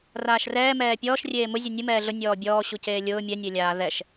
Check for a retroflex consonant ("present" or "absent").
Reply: absent